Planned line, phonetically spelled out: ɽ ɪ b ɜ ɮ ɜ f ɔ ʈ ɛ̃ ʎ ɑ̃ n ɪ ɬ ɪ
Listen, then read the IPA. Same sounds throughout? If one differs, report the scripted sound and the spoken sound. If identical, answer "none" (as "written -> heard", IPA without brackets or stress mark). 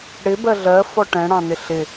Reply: ʎ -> ɽ